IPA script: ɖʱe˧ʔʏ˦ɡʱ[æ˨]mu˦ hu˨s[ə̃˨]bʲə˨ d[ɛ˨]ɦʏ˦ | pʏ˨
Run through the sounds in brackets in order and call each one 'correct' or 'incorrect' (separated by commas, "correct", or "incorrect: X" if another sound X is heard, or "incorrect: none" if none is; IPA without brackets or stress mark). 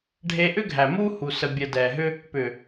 correct, incorrect: ə˨, correct